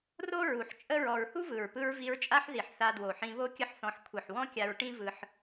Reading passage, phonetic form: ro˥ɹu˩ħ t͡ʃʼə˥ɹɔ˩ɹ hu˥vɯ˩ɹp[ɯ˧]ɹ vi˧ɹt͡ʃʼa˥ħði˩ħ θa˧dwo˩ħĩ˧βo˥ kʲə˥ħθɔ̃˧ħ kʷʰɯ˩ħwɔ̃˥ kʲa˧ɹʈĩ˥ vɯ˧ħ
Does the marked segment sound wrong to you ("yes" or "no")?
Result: no